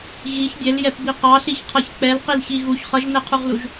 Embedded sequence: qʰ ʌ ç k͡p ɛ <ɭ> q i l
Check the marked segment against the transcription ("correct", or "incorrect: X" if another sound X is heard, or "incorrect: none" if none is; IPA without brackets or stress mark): incorrect: l